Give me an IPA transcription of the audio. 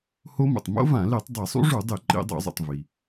ho˦˥mṵ˩tˤ mo̰˦˥vã˧˩˧ li˧˩˧tˤdˤi˧˩˧sˤṵ˦˥ ʐu˧˩˧dˤi˧˩˧ ǃḭ˧˩˧ dˤo̰˧˩˧zˤṵ˩tˤ vi˩

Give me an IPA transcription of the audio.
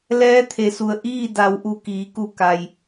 lɛː˧˥t̪ʰe˩su˩ə̯ ʔiː˥˨ da˩˧wʔu˩ kiː˩˧ku˧˩ ka˩j

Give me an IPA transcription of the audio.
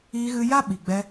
iː˧ɣɨ˧ja˦ ɓi˨ɡ͡bɛ˧

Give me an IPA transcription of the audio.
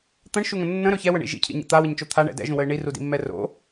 t̪ə̃ɳʃuŋə̃ nːə̃ɾɵ çɛwəɳḭ ʒḭcʰḭɲɛ̰ t̪awəɲt͡ʃo t̪ʰaɳɛ̰ dɛ̰ʒũwəɪ̯ ɳirudḭmːɛ ro̰

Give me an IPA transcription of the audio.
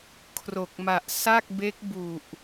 kʰro˨˩k̚ma˨˩ʔ sa˥˩k̚ be˦˥k̚bu˨˩ʔ

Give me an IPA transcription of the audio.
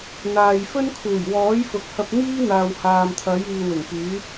n̪aː˨jfɵ˥n kʰuː˨˩jwɔː˨˥jfʊ˨k̚ hɐ˧p̚n̪iː˥n̪aː˨w haː˨mt̪ʰɐ˨˥jiː˨ wɪ˨˩ŋpyː˨˥

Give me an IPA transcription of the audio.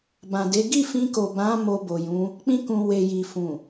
bã˨de˨˦ ɡi˦˨fĩ˧ ko˨bã˨˦ mo˧bo˨jũ˨˦ | k͡pĩ˧kũ˨ we˨ji˨fũ˨

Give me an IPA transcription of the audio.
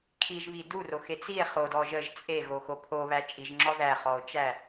kʰiʒβi duroxe t͡sie̯ χodɔ ʒəʒ t͡sʼeɣoxo pʰoβæ t͡ʃʼiʒŋ͡ǁɔ ðæχɔo̯t͡ʃæ

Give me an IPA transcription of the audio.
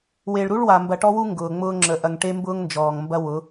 we˨ɭɾu˦ɭwa˨ mbɐ˨ʈɔ˦wu˦ ŋɡʊː˨ŋ͡mʊː˦ŋ͡ǁə˨˦ ʔɐ˨ŋ ʈe˦mbʊː˦ŋnd͡ʒɔː˨ŋmbɐ˦ wʊ˨˦

